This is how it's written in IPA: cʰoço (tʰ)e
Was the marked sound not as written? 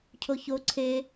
yes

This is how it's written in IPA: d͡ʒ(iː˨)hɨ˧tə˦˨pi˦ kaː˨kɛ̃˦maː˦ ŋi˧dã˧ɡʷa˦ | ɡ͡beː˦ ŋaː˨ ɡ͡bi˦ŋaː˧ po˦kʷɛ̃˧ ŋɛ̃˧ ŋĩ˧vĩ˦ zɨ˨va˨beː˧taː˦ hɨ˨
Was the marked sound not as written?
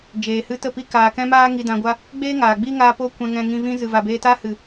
yes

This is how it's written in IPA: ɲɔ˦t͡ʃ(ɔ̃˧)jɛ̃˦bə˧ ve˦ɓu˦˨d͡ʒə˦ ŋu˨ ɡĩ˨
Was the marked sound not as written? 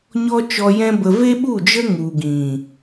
yes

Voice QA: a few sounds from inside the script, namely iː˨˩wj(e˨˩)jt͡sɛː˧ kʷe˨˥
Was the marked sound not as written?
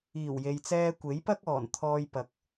yes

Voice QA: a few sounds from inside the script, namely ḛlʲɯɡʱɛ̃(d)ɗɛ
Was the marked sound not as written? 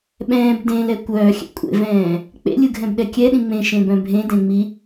yes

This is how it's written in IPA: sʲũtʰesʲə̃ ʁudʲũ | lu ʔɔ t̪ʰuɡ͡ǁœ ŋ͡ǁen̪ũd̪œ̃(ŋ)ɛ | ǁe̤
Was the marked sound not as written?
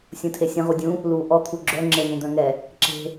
no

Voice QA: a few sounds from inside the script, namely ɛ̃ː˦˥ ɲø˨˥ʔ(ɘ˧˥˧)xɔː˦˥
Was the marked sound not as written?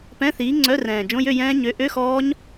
yes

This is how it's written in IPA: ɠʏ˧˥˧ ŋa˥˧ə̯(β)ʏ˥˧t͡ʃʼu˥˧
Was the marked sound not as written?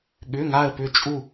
yes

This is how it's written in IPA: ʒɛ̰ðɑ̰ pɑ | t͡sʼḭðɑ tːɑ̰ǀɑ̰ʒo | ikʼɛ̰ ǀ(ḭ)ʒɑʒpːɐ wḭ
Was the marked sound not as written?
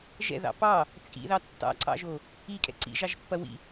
no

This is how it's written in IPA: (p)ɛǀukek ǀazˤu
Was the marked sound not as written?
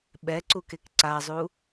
yes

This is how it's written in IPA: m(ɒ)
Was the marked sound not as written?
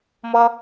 yes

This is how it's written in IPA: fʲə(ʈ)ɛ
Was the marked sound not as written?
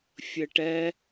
no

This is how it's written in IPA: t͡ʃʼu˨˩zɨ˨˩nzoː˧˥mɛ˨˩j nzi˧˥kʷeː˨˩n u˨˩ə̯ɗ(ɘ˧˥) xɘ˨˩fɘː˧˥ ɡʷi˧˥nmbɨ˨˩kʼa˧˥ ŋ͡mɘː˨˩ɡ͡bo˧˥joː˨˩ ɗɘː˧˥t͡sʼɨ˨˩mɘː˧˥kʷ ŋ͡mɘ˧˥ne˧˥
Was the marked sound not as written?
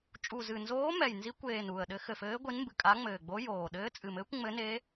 no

